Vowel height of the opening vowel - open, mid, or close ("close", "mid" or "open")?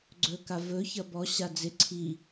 mid